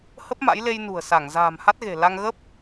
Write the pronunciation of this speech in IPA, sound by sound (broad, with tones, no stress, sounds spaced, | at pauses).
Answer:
h ə˦˥ p̚ m a̰˧˥ j l e˧ j n ṳ˨˩ ə̯ s a˧˩ ŋ z a̤ː˨˩ m h a˦˥ t̚ ɣ e̤˨˩ l a˧ ŋ ɣ ə˦˥ p̚